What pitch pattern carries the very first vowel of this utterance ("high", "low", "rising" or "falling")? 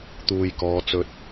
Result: low